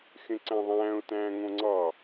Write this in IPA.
xẽǀæ̃ðˤæ̃ːʊ̯ tæ̃ːŋõŋ͡ǀɑ

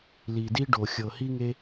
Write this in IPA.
li˨di˦ɖo˨ xʲɤ˨hi˦ŋe˦

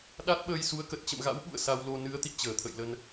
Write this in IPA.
ɗa˦˥t̚ɓəː˧j su˨˦ə̯kə˨˩t̚ t͡ɕə̰˧˨mɣa̰˧˥w ɓṵ˧˨ə̯ sa˧wlo˧ nɨ˨˦ə̯t̪ḭ˧˨ t͡ɕəː˧˩t̪ʰə̰˧˨jlə˧n

